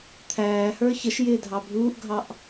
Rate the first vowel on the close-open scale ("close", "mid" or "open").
open